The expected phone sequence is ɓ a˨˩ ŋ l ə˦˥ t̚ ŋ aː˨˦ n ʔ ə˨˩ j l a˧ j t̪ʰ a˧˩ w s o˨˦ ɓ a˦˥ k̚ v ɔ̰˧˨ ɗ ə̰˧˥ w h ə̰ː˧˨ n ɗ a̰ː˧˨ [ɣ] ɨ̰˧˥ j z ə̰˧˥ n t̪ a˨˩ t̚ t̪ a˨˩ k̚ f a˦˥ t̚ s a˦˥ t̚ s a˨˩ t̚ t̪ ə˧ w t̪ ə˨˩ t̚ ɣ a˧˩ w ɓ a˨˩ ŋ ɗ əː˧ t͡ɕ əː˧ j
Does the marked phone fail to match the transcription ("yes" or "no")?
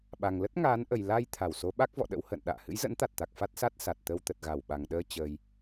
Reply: yes